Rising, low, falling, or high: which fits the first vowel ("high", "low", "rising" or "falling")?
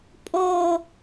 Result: falling